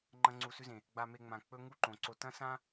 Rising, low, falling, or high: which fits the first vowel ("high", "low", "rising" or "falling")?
high